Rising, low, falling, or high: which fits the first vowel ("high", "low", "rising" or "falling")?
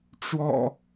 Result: low